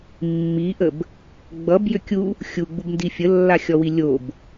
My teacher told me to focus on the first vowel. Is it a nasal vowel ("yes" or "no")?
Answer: no